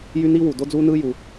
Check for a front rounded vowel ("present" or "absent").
present